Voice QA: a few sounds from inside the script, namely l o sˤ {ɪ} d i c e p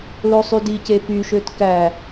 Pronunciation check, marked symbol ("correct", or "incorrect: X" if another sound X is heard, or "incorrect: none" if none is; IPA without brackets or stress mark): incorrect: y